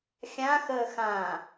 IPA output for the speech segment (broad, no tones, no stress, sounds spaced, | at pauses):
xʲ ã x əː x ã